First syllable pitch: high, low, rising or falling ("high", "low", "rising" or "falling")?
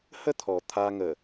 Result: high